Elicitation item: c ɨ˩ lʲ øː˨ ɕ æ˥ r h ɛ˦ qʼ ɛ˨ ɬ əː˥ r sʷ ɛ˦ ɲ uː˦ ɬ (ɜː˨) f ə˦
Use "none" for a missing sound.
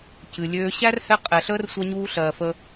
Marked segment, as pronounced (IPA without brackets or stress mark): ɜː˨